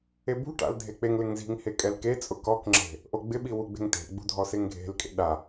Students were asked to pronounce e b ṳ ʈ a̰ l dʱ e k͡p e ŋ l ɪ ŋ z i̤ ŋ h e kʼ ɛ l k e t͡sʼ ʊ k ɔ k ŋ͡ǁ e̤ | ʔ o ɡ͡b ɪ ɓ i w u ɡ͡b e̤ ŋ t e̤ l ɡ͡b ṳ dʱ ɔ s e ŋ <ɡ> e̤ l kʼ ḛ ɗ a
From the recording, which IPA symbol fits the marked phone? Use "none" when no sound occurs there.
ɡʱ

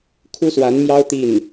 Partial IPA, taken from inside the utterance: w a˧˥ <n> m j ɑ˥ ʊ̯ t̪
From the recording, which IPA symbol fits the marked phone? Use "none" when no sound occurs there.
n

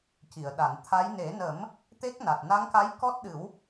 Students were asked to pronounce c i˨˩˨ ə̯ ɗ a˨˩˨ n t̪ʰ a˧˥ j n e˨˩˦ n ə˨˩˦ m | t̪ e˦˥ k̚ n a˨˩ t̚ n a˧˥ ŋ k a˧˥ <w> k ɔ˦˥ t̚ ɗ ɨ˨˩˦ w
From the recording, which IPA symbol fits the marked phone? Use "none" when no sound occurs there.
j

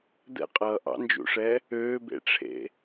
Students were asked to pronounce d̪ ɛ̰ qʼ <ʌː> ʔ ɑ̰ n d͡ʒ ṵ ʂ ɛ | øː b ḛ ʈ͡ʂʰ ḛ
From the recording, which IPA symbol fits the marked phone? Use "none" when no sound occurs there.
ʌː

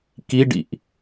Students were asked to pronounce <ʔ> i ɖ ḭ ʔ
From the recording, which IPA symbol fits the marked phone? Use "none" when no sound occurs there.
k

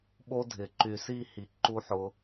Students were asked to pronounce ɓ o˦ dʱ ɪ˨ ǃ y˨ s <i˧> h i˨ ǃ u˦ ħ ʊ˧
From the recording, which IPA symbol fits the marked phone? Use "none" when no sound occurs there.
i˦˨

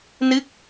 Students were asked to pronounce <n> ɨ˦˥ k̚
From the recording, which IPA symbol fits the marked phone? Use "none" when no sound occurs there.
n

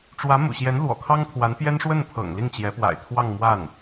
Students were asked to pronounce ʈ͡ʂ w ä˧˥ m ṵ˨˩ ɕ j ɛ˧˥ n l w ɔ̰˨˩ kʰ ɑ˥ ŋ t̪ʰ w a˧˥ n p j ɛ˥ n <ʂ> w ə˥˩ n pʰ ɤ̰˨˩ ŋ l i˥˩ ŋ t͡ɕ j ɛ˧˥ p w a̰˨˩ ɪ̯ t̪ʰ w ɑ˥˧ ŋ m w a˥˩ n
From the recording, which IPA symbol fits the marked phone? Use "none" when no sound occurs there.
ʂ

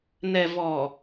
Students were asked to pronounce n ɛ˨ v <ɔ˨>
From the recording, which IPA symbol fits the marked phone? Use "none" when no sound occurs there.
ɔ˨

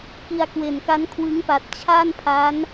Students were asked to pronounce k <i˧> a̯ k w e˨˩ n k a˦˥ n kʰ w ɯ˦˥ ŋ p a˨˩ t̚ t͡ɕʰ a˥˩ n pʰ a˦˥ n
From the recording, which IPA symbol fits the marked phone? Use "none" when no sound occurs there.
i˧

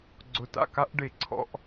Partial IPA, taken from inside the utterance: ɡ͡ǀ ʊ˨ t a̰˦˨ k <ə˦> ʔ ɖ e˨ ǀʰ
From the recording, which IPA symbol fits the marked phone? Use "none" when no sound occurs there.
a˦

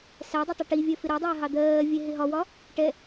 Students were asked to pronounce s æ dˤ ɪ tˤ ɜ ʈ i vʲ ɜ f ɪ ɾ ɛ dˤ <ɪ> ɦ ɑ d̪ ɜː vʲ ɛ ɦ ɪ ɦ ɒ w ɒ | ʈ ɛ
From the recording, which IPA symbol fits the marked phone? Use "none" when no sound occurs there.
ɪː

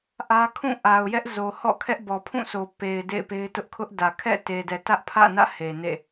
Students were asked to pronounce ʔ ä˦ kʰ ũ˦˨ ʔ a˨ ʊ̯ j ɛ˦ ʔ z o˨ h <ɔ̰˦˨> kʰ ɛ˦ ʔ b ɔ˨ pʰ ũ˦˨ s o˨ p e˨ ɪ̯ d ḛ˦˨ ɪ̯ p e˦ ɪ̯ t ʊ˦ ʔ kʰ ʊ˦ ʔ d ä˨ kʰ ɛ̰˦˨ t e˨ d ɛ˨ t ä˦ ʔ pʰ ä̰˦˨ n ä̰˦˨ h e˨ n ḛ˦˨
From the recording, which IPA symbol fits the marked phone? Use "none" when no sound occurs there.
ɔ̰˦˨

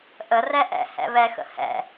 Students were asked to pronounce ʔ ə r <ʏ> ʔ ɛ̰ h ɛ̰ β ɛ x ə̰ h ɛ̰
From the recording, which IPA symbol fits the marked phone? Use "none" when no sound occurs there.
ɛ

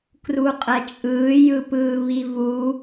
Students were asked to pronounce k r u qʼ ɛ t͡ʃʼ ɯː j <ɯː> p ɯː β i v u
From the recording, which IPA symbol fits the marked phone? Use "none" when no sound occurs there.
ɯ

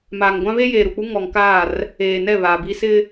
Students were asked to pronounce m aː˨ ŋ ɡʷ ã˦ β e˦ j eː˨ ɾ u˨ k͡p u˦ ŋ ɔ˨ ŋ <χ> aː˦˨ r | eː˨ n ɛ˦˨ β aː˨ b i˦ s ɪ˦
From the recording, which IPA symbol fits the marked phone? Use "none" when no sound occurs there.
k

